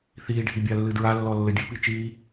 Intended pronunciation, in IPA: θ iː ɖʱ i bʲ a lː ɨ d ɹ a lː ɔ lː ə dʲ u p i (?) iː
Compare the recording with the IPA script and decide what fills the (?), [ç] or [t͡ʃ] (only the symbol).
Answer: t͡ʃ